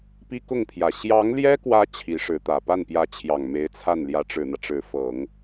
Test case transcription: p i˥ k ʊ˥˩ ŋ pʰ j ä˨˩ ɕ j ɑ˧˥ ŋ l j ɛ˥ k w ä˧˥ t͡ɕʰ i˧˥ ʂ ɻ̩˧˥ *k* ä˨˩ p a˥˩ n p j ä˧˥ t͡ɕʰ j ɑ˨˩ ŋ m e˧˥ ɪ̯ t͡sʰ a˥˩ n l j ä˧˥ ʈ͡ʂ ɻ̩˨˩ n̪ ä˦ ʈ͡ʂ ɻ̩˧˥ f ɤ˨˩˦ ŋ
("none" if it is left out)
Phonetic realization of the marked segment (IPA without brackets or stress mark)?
t̪